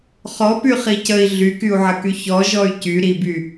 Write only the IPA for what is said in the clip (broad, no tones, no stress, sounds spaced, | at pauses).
χ ɔ p y χ i c ə i̯ ɮ y k y u̯ ʕ ə k y ç ɔ ʒ ɔ y̯ c y ɾ i b y